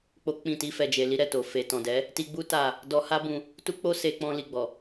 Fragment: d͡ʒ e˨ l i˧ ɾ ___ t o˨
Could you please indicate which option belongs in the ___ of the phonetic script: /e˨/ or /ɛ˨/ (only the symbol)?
ɛ˨